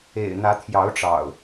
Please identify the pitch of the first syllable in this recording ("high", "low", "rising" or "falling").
low